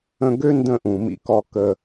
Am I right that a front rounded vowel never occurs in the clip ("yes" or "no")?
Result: no